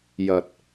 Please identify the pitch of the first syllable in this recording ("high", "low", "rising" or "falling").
low